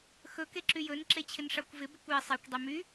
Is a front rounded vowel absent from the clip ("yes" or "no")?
no